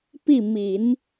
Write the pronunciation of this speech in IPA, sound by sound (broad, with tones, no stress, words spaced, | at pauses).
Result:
pi˥˩ mi˨˩˦n